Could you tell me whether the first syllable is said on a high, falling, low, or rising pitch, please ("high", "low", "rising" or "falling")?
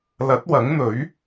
rising